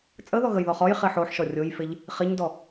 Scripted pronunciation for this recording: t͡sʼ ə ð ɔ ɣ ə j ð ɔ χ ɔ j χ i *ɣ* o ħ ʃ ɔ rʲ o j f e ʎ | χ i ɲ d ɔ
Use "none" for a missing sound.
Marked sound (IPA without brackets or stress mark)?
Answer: ħ